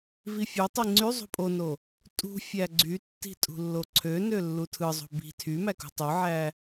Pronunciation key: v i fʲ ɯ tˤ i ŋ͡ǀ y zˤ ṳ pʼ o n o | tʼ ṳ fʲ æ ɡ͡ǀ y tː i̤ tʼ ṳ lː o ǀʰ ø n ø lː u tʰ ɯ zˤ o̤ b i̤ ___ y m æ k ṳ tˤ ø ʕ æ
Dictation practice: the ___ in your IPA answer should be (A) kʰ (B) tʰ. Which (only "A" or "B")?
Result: B